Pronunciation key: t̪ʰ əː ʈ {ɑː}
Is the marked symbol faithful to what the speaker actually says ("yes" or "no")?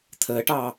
yes